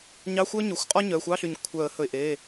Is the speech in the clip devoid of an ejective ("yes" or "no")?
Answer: no